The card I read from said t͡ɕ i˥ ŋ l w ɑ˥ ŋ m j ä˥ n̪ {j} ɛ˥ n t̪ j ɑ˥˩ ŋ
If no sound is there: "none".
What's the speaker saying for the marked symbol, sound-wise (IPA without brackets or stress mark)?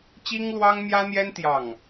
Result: j